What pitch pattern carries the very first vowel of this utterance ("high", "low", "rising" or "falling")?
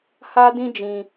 high